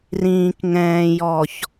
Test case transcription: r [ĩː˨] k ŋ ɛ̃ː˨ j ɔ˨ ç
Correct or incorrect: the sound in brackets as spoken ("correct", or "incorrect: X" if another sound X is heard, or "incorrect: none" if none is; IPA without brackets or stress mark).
correct